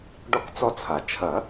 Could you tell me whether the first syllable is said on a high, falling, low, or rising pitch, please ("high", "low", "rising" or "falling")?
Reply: high